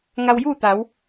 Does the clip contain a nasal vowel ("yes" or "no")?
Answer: no